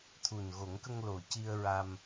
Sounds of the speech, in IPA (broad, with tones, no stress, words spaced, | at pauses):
t̪ʰu˨˩nɣo˨˩˦ŋkə˧ŋ lo˨˩ ci˧ə̯ ɹa˧m